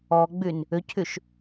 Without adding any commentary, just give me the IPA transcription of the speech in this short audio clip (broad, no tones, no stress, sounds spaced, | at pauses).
ɔ ɡ͡b y n | ʏ cʰ y ʃ